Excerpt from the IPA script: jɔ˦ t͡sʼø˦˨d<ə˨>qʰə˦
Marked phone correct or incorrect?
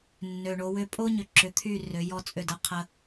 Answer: incorrect